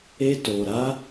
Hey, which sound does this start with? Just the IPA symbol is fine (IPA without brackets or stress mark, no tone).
e